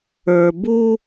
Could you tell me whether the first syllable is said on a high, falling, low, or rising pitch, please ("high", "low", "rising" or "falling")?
low